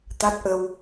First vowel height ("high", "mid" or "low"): low